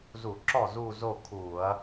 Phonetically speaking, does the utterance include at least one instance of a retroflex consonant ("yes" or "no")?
no